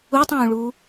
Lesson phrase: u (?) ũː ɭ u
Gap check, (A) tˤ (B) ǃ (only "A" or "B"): A